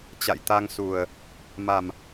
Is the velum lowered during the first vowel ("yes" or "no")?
no